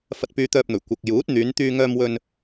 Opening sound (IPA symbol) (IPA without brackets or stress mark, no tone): f